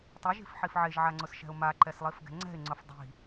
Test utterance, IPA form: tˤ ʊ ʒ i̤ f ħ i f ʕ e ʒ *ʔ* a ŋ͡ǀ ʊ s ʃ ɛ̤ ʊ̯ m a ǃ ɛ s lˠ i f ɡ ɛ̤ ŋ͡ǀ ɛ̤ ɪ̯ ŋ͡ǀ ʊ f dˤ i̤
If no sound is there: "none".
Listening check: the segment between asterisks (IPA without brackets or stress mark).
ʕ